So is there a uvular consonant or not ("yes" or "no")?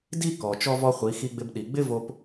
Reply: yes